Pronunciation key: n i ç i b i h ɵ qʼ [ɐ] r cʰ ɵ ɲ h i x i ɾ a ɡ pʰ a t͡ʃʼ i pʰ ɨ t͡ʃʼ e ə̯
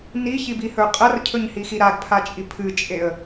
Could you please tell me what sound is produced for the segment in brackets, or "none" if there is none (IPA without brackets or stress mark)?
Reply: ɐ